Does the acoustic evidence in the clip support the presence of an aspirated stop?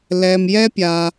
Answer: no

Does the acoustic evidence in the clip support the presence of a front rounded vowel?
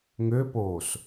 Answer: yes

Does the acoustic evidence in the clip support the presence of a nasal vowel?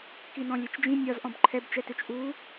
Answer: yes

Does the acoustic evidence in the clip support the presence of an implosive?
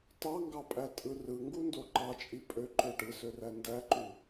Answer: no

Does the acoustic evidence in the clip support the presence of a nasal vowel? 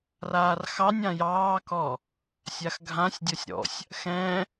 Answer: yes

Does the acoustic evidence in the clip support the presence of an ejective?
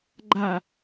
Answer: no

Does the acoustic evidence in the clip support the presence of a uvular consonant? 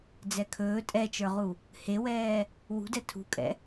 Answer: yes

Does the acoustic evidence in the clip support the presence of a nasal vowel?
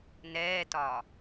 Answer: no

